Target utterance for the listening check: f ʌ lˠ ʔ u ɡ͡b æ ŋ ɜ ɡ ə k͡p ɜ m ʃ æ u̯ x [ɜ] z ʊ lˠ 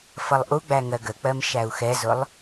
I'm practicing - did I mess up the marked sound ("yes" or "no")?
yes